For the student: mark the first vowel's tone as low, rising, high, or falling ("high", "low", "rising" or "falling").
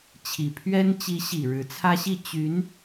low